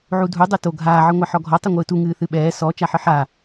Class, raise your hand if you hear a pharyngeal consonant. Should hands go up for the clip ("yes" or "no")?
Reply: yes